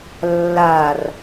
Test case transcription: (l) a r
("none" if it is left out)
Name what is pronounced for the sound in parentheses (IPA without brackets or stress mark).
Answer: lː